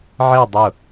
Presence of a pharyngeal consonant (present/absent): present